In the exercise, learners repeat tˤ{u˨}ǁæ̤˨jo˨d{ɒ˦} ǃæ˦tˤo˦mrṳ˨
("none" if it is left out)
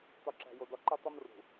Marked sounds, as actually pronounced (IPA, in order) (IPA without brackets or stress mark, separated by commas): u˨, ɒ˦